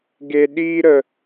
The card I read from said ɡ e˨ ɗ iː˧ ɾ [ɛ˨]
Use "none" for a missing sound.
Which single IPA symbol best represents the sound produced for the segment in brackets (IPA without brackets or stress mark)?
ə˨